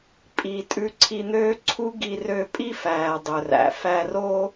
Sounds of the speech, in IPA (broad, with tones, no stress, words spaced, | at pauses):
pʼi˩ tʼʉ˧ǀʰi˧n̪øː˥ ǀʰu˥ɡi˧ rø˧pʼi˥fæː˩ dˤɵ˩ræ̰˩ fæ˧roː˥